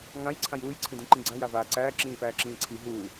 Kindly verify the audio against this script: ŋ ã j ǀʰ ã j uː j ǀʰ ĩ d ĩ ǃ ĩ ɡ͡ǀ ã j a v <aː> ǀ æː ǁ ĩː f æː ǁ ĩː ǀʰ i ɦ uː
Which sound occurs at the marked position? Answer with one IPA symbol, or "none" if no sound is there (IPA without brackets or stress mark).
aː